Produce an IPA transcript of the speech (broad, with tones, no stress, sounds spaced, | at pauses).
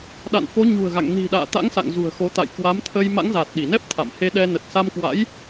ɗ a̰˧˨ n f o˨˦ ɲ ṳ˨˩ ə̯ ɣ a̰˧˨ ŋ n i̤˨˩ ɗ a̰ː˧˨ t̪ a̰˧˥ ŋ s a̰˧˨ ŋ z ṳ˨˩ ə̯ x o˨˦ t̪ a̰˧˨ j k w a˨˦ m t̪ʰ ə˧ j m a̰˧˥ ŋ z aː˨˩ t̚ ɗ i˧˩ n ɛ˦˥ p̚ t̪ʰ a̰˧˨ m h e˧ ɗ ɛ˧ n ə˨˩ t̚ s a˧ m k w a̰˧˥ j